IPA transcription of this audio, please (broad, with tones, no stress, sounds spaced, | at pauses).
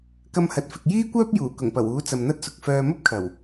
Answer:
k ɐ˧ m h ɐ˨ t̚ f ɪ˨ k̚ j iː˥ kʷ œː˥ p̚ j uː˨˩ k ʊ˨˩ ŋ p ɐ˨˩ w uː˨˥ t͡s ɐ˨ m n̪ ɐ˥ t̚ s ʊ˨ k̚ f œː˨ m ɐ˥ p̚ kʰ ɐ˨˩ w